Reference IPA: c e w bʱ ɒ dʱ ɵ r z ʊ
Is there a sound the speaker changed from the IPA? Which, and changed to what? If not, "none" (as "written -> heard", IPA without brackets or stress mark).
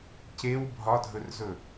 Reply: ʊ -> ɵ